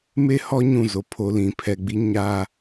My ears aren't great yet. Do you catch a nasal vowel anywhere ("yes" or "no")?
yes